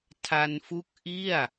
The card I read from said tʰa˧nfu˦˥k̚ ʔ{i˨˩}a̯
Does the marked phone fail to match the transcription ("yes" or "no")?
yes